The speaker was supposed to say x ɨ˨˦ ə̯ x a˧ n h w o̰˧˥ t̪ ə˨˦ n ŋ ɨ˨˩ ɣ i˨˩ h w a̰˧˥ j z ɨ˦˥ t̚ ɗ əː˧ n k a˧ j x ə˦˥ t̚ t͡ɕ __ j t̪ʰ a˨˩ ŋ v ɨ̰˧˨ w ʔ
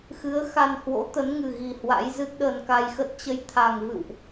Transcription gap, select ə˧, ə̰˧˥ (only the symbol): ə˧